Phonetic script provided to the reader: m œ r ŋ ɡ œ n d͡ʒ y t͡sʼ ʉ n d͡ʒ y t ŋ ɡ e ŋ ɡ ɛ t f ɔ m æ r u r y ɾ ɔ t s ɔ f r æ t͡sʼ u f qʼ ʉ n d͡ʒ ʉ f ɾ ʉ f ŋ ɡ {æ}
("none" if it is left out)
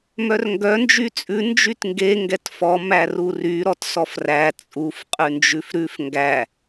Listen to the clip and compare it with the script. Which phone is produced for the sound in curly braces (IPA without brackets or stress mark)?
æ